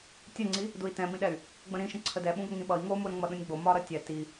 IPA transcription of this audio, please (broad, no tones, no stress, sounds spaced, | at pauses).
tʲ ə ŋ͡ǀ i | d u i̯ t ɛ̃ m ĩ ɗ ɛ y̯ | ɡ͡b ə̃ ɾ ĩ ʃ ə̃ ǀʰ ə d ɛ ɓ ũ ɡ ʊ ŋ ĩ ɓ ʌ i̯ ŋ o m ʊ ɾ ə̃ ŋ͡m ʌ ɗ ũ nʲ ɡ͡b o m ɒ ɾ ʌ tʲ ɛ t i